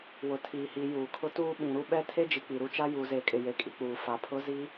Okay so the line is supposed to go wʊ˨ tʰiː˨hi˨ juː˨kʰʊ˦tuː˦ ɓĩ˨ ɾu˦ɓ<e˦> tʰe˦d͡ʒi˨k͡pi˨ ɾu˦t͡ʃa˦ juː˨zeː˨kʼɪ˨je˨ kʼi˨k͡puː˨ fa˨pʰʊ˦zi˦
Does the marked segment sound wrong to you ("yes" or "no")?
yes